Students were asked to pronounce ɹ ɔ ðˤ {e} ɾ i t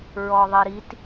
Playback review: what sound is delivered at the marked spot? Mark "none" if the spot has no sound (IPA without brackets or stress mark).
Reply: i